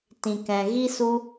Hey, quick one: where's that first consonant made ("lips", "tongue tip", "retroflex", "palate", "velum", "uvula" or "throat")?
tongue tip